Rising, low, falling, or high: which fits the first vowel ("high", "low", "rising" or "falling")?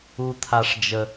low